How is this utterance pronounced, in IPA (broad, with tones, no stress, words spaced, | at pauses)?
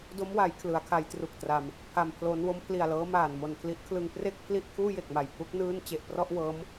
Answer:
do˦˥mwa˩˦j kʰlɯ˩˦a̯kʰa˦˥jtru˨˩k̚tra˧m | pʰa˧mpʰlo˦˥n wo˦˥mpʰli˨˩a̯lɤː˦˥ maː˨˩n mo˨˩nkʰli˦˥ʔkʰlɯ˧ŋ pre˥˩k̚pʰli˥˩ʔ kʰuː˥˩je˨˩k̚ma˨˩jpʰu˦˥k̚ nɯː˥˩n t͡ɕe˨˩ʔprɔ˥˩ʔ wɤː˦˥m